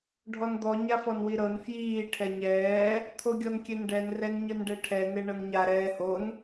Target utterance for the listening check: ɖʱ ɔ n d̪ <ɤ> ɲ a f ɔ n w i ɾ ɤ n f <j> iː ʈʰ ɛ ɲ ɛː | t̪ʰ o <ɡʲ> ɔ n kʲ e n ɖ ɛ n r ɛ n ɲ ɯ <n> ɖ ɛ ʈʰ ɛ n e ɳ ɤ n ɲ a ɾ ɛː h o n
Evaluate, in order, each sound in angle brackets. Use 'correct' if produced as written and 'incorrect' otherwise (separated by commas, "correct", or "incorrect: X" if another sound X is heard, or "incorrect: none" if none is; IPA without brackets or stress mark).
incorrect: ɔ, correct, correct, correct